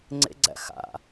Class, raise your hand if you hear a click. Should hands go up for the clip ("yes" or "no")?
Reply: yes